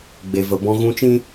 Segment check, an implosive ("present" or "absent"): absent